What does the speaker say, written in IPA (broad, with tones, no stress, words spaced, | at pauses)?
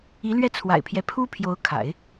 i˧˥lɥɛ˥˩t͡sʰwa̰˨˩ɪ̯pʰjɛ˦ pʰu˥pʰjo˧˥ʊ̯kʰa̰˨˩˦ɪ̯